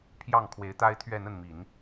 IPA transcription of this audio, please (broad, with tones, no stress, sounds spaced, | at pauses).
pʰ j ɑ˥˩ ŋ kʰ w e˧˥ ɪ̯ t̪ a˥ ɪ̯ t̪ʰ ɥ ɛ˥˧ n̪ ə˥˩ n m i˨˩˦ n